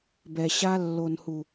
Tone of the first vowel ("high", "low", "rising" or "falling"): low